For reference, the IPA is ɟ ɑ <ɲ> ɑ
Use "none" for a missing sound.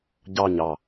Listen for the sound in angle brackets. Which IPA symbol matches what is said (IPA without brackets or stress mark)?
ɲ